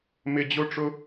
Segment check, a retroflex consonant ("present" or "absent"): present